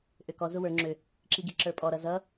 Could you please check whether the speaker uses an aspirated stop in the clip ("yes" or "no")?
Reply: no